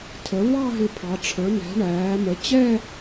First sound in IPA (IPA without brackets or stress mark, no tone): tʰ